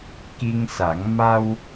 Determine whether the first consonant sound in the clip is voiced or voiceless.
voiceless